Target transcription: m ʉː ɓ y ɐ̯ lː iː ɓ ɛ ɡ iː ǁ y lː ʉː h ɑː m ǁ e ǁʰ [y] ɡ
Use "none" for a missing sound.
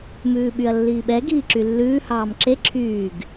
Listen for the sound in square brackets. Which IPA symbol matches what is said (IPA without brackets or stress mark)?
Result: yː